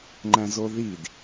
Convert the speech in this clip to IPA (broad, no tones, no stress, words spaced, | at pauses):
ŋ͡ǃæ̃zoðid